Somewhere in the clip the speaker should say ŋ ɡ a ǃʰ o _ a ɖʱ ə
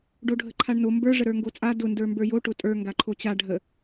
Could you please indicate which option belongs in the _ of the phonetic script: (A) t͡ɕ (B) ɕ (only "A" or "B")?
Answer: A